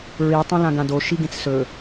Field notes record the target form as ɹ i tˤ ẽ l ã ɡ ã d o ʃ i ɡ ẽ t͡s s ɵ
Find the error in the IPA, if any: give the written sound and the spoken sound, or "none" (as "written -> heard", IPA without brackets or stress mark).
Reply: none